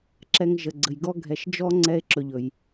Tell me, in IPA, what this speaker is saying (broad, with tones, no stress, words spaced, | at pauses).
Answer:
ǁɛ˨ŋʒə˩ɡ͡ǀə˩j ɡɔ˦ɡʱɛ˨ʃd͡ʒɔ˥ ŋ͡ǀɛ˦e̯ǁɵ˨ʎɵ˩j